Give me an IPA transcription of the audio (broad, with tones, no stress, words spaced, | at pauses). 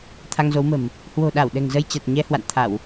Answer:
t̪ʰa˧ŋzo˨˦wmə̤˨˩m | hwo̤˨˩ɗa˧˩w ɗɛ̤˨˩ŋzə˧jt͡ɕa˨˩t̚ ɲɛ˨˦ hwa̰˧˨n t̪ʰa˧˩˨w